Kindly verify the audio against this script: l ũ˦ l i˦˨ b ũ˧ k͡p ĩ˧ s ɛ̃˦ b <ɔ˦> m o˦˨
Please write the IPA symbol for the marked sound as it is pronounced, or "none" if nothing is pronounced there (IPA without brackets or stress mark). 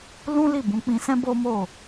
o˦